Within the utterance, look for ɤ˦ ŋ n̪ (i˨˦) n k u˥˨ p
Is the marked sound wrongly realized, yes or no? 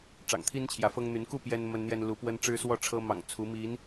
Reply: yes